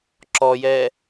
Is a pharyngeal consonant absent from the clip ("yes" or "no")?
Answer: yes